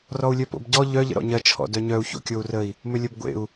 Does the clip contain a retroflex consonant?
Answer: no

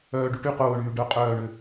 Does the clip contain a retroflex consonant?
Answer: yes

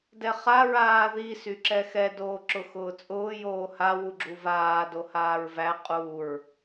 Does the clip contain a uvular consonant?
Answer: yes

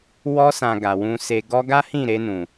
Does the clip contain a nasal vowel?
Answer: yes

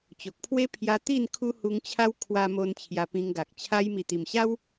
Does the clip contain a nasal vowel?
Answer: yes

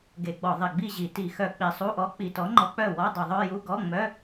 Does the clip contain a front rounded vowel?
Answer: yes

